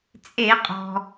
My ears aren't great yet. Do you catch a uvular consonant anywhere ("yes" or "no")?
yes